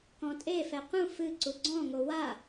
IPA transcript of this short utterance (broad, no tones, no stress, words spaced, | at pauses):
kɔ̃tʼefɛ qũ fɨǀu ɡ͡ǀɔ̃ŋo wa